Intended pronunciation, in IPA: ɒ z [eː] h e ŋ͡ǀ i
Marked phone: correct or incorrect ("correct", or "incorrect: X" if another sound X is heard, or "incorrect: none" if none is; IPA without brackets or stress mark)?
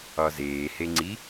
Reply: correct